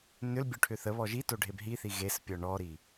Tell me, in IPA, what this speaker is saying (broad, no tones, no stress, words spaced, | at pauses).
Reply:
nʏlbʲoʈʰʏ θəβɔ ʒitoɖʱeb ɦiθi ɣespʲɔ ɳɔɾi